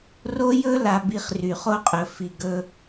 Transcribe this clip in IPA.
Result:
r o˦ j ɵ˦ l a˧ b i˧ χ r y˨ χ o˧ qʼ ɵ˨ f i˨ ɡ ɵ˧

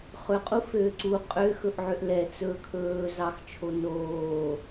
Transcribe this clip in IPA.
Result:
χ ɵ qʼ u f øː ǀ u qʼ ø x ɵ ʔ ʕ ø ʔ l ɛ t͡s ɵː kʰ ɵː z ɑ x t͡ʃʰ o n oː

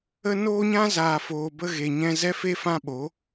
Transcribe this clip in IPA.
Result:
ə˧ n oː˧ ɲ ã˧ z aː˨ f oː˨ b ə˧ ɣ e˨ ɲ ɛ̃˧ z ɛ˦ f e˦ f ã˦ ɓ o˨˦

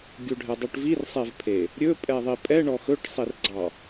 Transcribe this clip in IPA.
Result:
ɡʲ u ɖʱ ɛ dˤ u ʈ v i r sˤ e v pʰ e | ɾʲ ɵ pʼ ɛ ðˤ i pʼ ɛ ɳ ɔ x ɵ ʈ sˤ i r ɡ͡ǀ ɑ

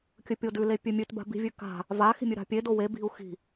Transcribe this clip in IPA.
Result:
kʲ ɵ pʲ o d ʉ l e pʲ ʉ mʲ ʉ t b a̤ b i̤ vʲ ʉ k a̤ | v a x i̤ mʲ ʉ ɾ a̤ pʲ e d o w e b i̤ u̯ x i̤

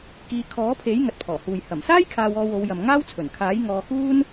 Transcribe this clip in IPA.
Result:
k iː˨˧ kʰ ɔː˨˥ pʰ e˨˥ j ŋ ɐ˨ t̚ pʰ ɔː˨˩ h uː˨ j h ɐ˨˩ m s aː˥ j kʰ aː˧ w ɔː˧ w o˨˧ w j ɐ˨ m ŋ aː˥ w t͡sʰ ɵ˨˩ n kʰ aː˨˥ j ŋ ɔː˨˧ k uː˥ n

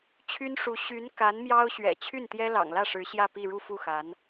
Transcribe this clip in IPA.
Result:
t͡ɕʰ y˥ n ʂ u˧˥ ɕ y˧˥ n k a˧˥ n m j ɑ˥ ʊ̯ ɕ ɥ ɛ̰˨˩ t͡ɕʰ y˥˩ n t̪ j ɛ˥ l ɑ̰˨˩ ŋ l ä˥˩ ʂ ɻ̩˧˥ ɕ j ä˥˧ p i˥˧ ɻ u˥˧ f u˥˩ x a˧˥ n

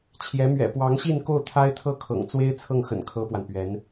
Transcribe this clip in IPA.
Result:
t͡ɕʰ j ɛ˧˥ m ɥ ɛ̰˨˩ p w ɑ˧˥ ŋ ɕ i˥˧ n k o˥˩ ʊ̯ t̪ʰ a˥ ɪ̯ t̪ʰ ɤ˥˩ kʰ ɤ̰˨˩ ŋ t͡s w e˥ ɪ̯ t͡sʰ ɤ˥˩ ŋ x ə̰˨˩ n kʰ ɤ˥ p w a˨ n p ɥ ɛ˧˥ n

